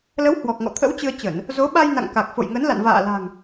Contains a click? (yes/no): no